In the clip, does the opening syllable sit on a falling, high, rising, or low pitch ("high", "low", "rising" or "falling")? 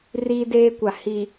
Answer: high